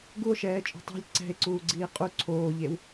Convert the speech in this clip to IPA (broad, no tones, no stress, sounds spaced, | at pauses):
ɡ u o̯ ʃ ɛː t͡ʃʼ o̤ tˤ e̤ lʲ ǀ ɛ̤ e̯ ǀ uː ɡ͡ǀ iː qʼ u ǀʰ oː ʎ e w